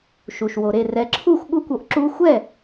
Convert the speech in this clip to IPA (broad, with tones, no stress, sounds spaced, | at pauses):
ʃ u˩ ʃ w o˩ ɾ e˥˩ r ɛ˩˥ ǁʰ u˥˩ xʷ ɠ u˥˩ kʷ o˧ ʔ ǁ u˧ xʷ ɛ˥˩